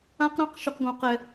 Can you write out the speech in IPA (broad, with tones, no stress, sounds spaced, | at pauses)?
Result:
ã˦ q ɾ ɑ̃˦ q ʃ y˨ q ɡ õ˨ q ɛ˨